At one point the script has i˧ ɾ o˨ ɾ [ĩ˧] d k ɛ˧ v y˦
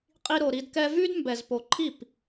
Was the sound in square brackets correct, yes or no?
no